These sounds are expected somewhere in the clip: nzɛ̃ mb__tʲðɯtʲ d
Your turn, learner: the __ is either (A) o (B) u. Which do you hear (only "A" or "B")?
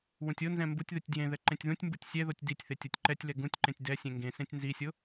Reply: B